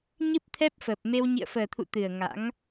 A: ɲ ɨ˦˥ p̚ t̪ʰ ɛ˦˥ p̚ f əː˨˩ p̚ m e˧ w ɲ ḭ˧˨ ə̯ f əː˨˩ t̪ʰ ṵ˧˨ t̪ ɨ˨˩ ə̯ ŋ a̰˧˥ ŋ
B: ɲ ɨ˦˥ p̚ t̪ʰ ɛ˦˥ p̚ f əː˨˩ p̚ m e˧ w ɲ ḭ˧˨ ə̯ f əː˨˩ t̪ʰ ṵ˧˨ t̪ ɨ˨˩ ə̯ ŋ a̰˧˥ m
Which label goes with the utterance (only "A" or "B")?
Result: A